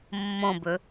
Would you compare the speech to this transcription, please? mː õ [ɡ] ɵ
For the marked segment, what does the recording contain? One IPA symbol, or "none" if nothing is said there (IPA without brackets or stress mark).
b